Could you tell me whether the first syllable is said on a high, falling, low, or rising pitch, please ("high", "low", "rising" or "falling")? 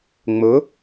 rising